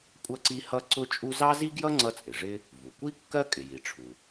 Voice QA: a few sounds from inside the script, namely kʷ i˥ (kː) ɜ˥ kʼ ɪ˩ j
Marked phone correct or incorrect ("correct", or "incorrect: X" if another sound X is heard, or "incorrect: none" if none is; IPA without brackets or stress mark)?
correct